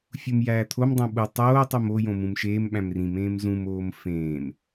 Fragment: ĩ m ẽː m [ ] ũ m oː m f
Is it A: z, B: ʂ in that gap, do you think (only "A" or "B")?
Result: A